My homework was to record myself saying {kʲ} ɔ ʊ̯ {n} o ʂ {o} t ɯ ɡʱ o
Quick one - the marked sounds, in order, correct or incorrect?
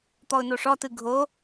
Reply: incorrect: t̪, correct, incorrect: ɔ

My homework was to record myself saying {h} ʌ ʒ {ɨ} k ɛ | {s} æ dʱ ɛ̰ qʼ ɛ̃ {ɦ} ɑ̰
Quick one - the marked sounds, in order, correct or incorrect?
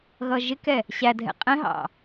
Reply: incorrect: ɣ, incorrect: ɪ, incorrect: ɕ, correct

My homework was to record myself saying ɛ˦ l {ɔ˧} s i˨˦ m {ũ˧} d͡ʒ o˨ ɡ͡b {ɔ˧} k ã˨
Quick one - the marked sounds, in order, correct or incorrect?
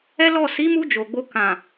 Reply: incorrect: ɔ˦˨, incorrect: u˧, incorrect: o˧

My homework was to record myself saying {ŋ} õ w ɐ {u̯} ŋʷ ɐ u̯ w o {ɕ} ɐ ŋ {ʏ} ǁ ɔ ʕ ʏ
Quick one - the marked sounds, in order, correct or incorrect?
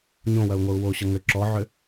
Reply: incorrect: ɲ, correct, correct, correct

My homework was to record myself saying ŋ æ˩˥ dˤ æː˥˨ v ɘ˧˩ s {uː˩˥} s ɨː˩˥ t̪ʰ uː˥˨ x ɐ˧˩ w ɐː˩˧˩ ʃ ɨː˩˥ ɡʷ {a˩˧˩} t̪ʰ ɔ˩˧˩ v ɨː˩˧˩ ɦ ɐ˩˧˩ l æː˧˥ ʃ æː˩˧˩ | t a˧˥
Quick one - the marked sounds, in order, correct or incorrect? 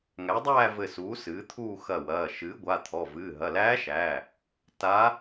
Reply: correct, correct

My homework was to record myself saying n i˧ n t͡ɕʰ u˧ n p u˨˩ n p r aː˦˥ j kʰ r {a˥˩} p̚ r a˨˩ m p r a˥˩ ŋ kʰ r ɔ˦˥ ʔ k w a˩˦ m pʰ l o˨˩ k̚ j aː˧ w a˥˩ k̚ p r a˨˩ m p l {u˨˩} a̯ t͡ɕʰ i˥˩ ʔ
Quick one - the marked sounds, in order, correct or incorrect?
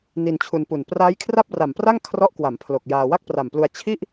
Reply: correct, incorrect: u˧

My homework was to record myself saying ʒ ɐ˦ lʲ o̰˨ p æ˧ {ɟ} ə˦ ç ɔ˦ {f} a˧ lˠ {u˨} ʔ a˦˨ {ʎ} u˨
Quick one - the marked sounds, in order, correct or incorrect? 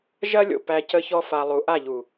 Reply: incorrect: c, correct, incorrect: u˨˦, correct

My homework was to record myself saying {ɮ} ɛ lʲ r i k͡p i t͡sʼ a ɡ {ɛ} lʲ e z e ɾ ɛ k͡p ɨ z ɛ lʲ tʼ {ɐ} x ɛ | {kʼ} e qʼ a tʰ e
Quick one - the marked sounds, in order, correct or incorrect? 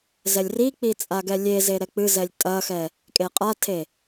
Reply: incorrect: z, correct, correct, correct

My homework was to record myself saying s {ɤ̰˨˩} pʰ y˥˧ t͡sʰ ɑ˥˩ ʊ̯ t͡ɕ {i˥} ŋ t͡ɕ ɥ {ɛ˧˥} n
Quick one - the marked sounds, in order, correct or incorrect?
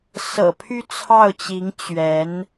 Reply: correct, incorrect: i˧˥, correct

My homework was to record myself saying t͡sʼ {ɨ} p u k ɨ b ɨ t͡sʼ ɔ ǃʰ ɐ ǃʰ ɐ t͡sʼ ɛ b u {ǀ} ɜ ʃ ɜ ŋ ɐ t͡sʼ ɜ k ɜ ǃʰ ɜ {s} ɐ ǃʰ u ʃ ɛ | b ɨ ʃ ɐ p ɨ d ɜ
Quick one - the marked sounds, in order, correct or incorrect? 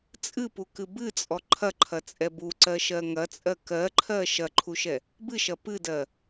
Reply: correct, correct, incorrect: ʃ

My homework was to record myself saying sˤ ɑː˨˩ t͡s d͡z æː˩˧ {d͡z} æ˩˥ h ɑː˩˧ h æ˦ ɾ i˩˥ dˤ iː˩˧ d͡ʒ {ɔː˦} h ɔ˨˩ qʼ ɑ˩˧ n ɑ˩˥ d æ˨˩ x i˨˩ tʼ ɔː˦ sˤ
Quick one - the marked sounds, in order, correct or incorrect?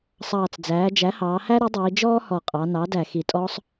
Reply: incorrect: d͡ʒ, correct

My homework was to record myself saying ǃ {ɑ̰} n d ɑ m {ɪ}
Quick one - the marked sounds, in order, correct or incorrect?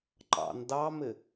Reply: correct, correct

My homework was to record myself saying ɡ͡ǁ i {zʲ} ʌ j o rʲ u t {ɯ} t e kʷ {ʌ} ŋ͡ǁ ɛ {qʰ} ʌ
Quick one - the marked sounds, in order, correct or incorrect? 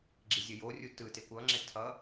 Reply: correct, correct, correct, incorrect: tʰ

